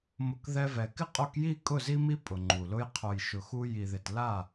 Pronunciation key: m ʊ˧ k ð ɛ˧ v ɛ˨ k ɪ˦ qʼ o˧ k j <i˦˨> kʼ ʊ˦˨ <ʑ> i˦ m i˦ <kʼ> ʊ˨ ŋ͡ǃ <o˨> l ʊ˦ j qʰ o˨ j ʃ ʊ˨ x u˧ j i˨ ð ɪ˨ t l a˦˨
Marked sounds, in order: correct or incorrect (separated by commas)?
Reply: correct, incorrect, incorrect, incorrect